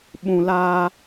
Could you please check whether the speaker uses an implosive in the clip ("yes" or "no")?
yes